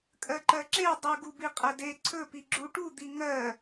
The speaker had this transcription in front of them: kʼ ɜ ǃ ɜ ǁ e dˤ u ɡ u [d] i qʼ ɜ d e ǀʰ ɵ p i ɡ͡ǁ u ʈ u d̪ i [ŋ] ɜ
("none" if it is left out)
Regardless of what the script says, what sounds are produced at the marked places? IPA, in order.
b, ŋ

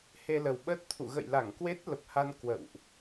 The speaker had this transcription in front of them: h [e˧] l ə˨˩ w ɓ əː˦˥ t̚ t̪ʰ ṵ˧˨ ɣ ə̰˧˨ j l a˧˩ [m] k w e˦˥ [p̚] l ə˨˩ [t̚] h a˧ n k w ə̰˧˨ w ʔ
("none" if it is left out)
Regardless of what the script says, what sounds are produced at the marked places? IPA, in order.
e˧, ŋ, t̚, p̚

